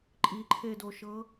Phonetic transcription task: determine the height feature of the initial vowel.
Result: high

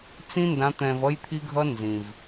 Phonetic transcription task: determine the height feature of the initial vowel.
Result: high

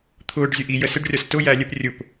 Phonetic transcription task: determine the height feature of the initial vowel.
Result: high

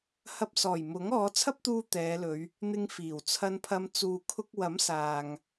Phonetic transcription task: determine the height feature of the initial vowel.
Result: low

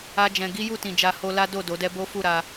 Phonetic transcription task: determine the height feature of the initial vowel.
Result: low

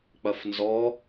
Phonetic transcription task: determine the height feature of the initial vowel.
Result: low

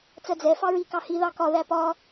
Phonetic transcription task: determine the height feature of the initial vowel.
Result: mid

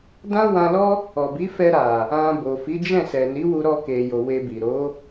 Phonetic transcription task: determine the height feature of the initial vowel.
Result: low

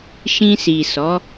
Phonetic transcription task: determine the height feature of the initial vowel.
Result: high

